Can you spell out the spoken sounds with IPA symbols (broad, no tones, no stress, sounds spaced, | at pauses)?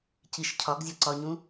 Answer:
c i ʃ cʰ ɒ ɡ zʲ ɒ ǀ ɒ ɲ ũ